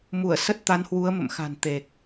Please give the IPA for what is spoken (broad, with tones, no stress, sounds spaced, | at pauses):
m u˧˩ ə̯ s ə˦˥ t̚ t̪ a˨˦ n h w u˨˦ ə̯ m ə̰˧˨ m x a̤˨˩ n t̪ e˨˩ k̚